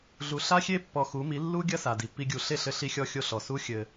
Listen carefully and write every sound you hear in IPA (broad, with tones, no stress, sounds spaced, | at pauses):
ɮ u˨ ɬ a˦ xʲ e˦ pː ɔ˧ x u˨˦ m i˨˦ lː u˦ ɡʲ ɐ˦ s a˨ d i˨ pː i˦ ɡʲ u˧ ɬ e˦˨ ɬ ɘ˧ ɬ i˧ xʲ ɔ˧ xʲ o˧ ɬ ɔ˨ s u˦ xʲ ɘ˧